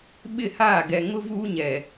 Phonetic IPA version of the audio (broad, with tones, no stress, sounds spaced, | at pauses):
ɓ ɪ˦˨ h aː˦˨ ɡ ɛ˨ ŋ ʊ˦ v uː˦ ɲ ɛ˨